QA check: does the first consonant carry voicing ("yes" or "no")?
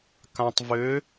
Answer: no